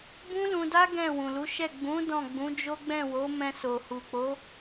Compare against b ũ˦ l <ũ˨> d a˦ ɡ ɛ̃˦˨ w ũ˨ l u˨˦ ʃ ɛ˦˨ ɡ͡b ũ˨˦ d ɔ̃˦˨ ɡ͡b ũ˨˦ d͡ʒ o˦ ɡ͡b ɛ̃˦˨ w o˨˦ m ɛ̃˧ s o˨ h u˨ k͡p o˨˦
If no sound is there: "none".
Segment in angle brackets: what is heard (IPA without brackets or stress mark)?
ũ˧